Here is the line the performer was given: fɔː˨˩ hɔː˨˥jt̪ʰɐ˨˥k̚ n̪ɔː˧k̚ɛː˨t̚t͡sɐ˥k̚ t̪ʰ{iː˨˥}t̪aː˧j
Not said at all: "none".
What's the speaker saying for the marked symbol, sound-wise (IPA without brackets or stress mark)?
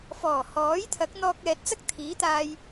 iː˨˥